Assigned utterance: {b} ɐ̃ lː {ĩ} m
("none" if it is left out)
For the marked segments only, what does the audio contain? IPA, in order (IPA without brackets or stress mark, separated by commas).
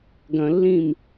ɡ, ĩ